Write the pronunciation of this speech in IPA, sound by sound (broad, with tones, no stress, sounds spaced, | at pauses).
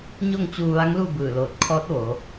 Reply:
ɲ o˥˨ ŋ t͡ɕ uː˧ ʋ a˧˥ ŋ l u˥˨ b ɯː˧˩ l oː˧˩ t̚ kʰ ɔː˧˥ t̚ ʋ oː˩˧